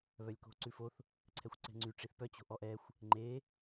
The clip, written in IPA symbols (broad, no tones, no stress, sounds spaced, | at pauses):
β œ lʲ k o̤ ǀ ʉ f o θ | ǀʰ ɛ xʷ ǀ ɛ̤ ŋ͡ǀ y ʈ͡ʂ i θ p œ t͡ɕ o̤ ʔ ɔ ʔ ɛ xʷ | ŋ͡ǃ e